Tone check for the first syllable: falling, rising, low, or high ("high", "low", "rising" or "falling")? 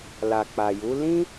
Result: low